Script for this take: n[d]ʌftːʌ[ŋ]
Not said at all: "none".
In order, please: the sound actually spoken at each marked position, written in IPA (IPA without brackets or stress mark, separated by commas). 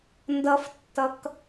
d, k